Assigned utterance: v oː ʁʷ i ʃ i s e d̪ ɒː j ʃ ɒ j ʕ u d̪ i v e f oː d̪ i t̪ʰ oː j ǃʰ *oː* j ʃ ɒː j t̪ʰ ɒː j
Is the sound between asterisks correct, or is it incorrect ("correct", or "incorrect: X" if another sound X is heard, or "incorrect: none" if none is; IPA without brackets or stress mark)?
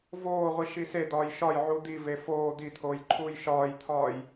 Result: incorrect: uː